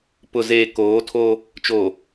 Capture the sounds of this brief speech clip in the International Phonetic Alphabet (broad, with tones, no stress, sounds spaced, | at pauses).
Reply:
p ʊ˨ z eː˨ k oː˨˦ tʰ oː˦ | t͡ʃ oː˨